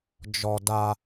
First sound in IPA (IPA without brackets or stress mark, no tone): d͡ʒ